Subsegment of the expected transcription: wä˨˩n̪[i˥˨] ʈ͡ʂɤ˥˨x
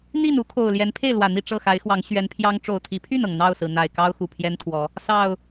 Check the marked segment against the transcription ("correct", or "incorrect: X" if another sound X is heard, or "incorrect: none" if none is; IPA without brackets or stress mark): correct